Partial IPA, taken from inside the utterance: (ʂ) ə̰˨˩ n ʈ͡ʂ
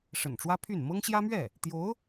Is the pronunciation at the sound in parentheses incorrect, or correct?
correct